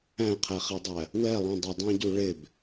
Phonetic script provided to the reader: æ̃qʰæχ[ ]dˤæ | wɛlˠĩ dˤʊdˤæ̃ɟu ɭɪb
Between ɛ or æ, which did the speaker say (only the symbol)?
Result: ɛ